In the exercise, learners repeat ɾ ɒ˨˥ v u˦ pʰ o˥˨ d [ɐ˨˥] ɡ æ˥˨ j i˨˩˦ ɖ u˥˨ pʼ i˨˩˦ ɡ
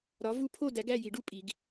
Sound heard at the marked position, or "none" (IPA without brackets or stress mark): æ˨˥